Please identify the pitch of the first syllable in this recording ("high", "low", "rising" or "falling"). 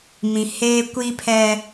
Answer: low